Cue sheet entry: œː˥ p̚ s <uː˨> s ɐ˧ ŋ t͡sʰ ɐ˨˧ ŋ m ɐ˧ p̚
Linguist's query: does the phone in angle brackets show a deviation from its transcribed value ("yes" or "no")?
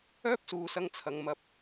no